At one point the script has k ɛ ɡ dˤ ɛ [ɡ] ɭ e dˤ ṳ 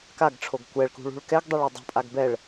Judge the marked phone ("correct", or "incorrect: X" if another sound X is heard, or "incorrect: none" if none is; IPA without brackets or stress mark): incorrect: none